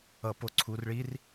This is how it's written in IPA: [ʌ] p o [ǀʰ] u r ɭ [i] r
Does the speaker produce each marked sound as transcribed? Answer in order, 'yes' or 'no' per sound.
yes, yes, yes

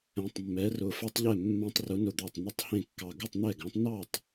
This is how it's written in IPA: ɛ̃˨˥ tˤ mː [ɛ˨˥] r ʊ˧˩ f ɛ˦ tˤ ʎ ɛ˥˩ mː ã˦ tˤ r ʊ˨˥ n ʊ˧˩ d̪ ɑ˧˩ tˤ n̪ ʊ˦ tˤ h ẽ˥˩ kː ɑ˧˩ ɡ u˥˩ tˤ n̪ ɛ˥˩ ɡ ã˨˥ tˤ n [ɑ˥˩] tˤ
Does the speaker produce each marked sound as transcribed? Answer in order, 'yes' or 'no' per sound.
yes, yes

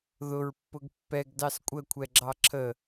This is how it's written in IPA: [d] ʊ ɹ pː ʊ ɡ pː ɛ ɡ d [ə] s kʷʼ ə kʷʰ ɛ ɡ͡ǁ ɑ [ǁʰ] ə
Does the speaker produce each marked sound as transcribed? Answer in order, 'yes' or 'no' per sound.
no, no, yes

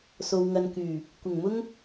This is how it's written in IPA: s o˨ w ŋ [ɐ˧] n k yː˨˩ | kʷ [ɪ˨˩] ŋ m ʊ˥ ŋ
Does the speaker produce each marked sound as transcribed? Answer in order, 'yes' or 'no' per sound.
no, yes

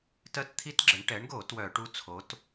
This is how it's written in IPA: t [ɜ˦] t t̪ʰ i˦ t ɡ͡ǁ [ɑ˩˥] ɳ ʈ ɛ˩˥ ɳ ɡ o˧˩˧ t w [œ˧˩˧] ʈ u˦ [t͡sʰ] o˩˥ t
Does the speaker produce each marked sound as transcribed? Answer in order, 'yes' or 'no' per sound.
yes, no, yes, yes

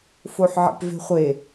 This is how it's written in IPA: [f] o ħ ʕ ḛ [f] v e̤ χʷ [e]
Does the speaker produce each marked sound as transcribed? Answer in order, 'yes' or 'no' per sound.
yes, no, yes

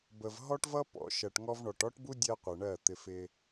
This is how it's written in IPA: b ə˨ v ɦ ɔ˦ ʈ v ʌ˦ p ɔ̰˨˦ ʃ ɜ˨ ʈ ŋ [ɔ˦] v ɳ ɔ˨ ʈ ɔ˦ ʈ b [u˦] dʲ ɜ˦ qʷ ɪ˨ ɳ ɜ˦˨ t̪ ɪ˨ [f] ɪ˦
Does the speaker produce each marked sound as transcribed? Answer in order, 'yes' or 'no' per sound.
yes, yes, yes

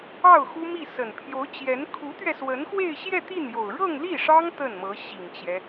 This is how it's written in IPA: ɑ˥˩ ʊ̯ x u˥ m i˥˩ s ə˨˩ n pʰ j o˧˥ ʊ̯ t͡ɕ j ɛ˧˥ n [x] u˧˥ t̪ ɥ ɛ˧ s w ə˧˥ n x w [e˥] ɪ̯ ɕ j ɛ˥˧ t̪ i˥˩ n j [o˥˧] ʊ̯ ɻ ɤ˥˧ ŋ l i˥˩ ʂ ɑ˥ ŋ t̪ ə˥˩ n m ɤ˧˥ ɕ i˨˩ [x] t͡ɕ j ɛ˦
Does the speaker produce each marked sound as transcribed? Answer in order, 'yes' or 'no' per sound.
no, no, no, no

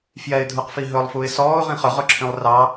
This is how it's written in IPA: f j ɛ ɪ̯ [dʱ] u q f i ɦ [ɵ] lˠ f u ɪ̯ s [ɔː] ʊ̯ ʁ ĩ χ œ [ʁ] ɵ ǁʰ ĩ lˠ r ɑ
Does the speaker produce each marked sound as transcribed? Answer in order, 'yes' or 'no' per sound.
yes, yes, yes, yes

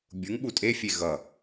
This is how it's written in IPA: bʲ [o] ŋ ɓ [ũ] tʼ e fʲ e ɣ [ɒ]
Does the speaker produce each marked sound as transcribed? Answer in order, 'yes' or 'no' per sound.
no, no, no

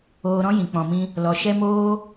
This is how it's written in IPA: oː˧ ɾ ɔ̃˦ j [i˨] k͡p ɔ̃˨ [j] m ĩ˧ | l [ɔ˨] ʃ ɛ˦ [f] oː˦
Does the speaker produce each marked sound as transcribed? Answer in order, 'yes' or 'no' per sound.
no, no, yes, no

